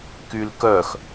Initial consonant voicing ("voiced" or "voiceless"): voiceless